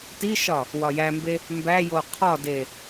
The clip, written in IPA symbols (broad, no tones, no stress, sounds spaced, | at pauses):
t i ʃ ɒ | w ɒ j æ m b e | m b æ j o qʰ ɒ d e